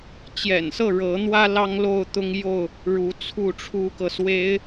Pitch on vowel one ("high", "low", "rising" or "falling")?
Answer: low